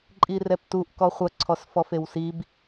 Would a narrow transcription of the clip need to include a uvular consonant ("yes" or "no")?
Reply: yes